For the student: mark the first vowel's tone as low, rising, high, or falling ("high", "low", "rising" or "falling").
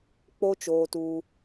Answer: high